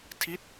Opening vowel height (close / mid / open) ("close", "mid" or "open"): close